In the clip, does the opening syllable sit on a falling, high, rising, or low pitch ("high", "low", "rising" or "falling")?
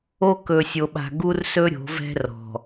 high